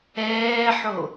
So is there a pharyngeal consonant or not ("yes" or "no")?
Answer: yes